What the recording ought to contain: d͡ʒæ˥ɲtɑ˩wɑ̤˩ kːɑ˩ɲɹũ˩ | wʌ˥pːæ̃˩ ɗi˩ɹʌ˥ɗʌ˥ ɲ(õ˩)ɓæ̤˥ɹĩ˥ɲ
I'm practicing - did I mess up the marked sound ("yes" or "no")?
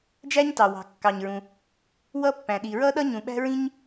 yes